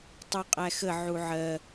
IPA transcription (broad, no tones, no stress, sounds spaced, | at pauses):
tˤ u qʼ æ x ə ʕ u ʕ ɜ